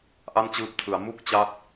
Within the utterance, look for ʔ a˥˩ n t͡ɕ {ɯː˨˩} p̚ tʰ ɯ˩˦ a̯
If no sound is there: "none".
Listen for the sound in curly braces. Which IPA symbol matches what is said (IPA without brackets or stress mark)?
ɯː˦˥